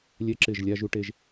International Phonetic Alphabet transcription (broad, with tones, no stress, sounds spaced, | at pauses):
lʲ ɛ˦ ǁ ɪ˦˨ ʒ lʲ a˦ ʒ u˦ ʈ e˦ ʒ